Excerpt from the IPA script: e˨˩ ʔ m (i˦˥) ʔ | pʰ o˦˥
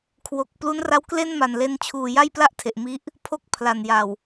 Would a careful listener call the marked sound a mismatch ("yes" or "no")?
no